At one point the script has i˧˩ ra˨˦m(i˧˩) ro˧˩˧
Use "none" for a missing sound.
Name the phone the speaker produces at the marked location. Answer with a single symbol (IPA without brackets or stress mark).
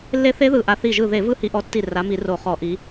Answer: i˧˩˧